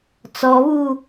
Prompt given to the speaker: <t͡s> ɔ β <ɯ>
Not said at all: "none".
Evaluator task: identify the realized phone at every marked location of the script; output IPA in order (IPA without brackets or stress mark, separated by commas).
t͡s, u